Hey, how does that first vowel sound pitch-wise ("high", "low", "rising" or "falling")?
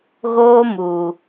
high